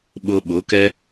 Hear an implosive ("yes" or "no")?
yes